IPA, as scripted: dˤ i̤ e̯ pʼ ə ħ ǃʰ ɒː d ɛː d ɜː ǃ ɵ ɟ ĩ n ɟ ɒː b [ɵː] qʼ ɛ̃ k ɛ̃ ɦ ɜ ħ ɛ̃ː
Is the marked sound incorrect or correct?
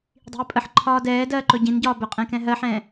incorrect